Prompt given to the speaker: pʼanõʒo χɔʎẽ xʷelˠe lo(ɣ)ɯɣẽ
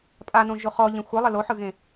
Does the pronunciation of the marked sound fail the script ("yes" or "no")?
yes